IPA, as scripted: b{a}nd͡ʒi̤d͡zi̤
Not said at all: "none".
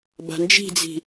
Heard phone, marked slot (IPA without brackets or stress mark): a̤